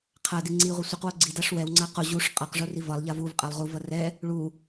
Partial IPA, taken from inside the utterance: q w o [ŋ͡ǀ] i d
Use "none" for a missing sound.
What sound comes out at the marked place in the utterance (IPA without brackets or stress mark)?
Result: ɡ͡ǀ